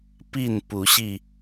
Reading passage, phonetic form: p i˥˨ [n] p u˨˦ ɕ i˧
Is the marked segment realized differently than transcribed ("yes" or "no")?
no